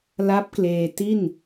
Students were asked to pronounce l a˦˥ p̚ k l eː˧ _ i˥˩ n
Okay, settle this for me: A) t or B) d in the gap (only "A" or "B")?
A